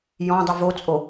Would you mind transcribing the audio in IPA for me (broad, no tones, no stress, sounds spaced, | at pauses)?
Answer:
j ɔ̃ dˤ y v o t͡sʼ o